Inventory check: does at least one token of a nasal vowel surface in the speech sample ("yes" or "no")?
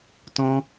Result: yes